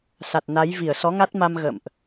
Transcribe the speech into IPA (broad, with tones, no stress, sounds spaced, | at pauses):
s a˨˩ t̚ n a˨˦ j v i˧˩ ə̯ s ɔ˨˦ ŋ a˦˥ t̚ m a˧ m ɣ ə̰˧˨ m ʔ